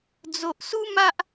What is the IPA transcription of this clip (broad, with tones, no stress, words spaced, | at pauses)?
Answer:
d͡zo˨ʔsu˦ma˦ʔ